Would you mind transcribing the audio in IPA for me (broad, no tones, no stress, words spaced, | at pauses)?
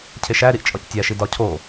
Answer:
cʰeʃæɾiʔ t͡ʃʼɒctʲæʃi dɒcʰo